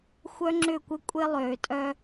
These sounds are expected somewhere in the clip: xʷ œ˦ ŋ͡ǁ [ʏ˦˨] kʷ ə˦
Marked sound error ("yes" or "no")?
no